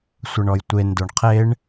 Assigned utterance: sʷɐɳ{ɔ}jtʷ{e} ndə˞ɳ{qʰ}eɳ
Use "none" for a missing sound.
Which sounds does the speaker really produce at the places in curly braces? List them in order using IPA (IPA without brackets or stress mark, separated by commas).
ɔ, e, qʰ